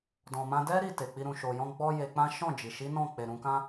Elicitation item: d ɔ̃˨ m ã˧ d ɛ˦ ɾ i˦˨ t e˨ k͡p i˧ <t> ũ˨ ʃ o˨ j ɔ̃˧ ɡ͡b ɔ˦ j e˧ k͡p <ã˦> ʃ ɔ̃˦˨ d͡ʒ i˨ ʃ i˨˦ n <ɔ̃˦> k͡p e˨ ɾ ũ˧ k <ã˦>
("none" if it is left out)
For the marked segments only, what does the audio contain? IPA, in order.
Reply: ɾ, ã˦, ɔ̃˦˨, ã˦

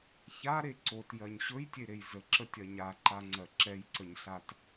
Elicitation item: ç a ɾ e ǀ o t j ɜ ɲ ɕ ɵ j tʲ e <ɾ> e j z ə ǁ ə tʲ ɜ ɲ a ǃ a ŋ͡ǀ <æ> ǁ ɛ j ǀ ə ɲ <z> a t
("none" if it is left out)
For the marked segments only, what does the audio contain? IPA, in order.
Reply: ɾ, ɜ, ɬ

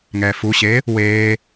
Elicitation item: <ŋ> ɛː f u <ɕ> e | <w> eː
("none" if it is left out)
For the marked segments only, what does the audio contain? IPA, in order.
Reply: ŋ, ɕ, w

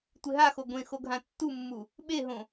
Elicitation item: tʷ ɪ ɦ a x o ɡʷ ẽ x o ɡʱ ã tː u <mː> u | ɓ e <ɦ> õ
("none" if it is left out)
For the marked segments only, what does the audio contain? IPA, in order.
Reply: mː, ɦ

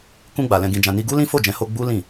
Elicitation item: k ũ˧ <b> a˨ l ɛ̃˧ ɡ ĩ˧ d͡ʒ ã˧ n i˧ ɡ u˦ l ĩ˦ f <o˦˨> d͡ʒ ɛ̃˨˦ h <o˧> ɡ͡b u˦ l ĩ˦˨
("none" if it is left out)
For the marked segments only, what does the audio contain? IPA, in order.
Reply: ɡ͡b, o˦˨, o˧

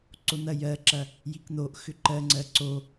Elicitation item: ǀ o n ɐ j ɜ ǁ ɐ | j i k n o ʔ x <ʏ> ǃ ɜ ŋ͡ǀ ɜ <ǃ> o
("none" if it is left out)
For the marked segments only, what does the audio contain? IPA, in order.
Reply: ʏ, ǀ

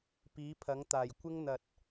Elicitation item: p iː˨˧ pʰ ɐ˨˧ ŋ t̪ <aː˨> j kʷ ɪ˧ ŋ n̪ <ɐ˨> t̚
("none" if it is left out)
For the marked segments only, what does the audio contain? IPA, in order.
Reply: aː˨, ɐ˨

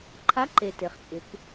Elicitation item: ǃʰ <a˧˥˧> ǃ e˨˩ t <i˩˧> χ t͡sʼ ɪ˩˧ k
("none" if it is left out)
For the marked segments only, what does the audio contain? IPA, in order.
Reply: a˧˥˧, e˩˧

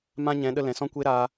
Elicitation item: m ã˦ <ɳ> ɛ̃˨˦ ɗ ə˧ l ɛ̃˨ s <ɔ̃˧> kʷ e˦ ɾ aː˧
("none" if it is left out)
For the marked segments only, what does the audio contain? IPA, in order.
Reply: ɲ, ɔ̃˦

